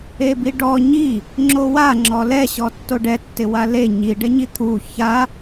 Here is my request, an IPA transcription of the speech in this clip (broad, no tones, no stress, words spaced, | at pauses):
ebiɖɔ ɲi | ŋ͡ǁowa ŋ͡ǁɔlɛ ɕɔtːoɖɛ tːɪwale ɲi ɖɛɲit̪ʰu ça